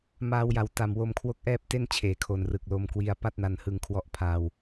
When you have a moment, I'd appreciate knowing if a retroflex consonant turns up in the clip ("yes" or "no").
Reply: no